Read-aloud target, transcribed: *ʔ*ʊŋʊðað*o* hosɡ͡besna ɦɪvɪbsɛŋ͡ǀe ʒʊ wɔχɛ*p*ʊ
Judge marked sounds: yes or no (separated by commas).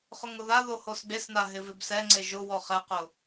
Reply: no, yes, no